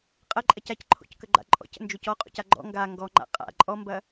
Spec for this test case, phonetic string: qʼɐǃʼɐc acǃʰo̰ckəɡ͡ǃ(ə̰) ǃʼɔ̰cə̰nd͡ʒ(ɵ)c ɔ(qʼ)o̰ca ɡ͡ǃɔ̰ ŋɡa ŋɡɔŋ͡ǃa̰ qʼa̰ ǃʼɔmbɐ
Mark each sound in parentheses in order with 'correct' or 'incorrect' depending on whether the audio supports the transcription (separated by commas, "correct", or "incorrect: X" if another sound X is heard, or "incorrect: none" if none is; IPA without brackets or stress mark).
incorrect: a̰, incorrect: o, correct